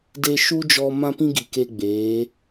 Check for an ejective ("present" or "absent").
absent